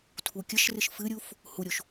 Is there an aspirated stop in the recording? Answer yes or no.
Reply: yes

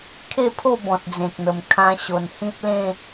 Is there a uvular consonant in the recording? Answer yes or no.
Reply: no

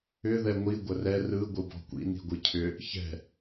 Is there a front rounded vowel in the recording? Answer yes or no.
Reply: yes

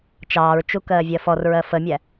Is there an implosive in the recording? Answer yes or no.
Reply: no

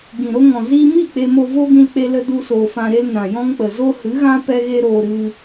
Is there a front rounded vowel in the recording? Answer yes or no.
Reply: no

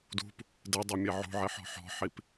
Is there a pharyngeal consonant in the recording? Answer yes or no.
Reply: yes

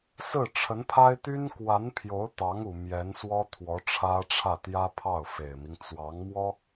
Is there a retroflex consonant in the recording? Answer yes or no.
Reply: yes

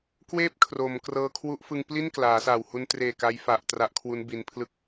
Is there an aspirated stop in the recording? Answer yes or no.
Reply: yes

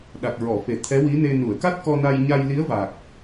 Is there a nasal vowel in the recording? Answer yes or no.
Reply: no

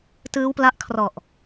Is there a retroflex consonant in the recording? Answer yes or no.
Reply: no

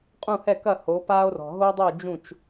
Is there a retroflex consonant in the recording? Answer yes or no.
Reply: no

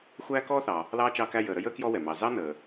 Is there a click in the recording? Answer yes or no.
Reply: no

